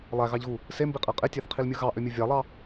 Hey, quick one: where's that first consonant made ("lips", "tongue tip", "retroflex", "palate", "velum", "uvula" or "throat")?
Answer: tongue tip